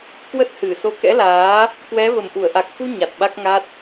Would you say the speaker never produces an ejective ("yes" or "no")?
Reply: yes